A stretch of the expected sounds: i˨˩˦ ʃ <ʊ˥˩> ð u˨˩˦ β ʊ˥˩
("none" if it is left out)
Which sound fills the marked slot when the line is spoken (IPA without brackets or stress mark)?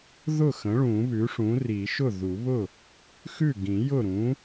ʊ˥˩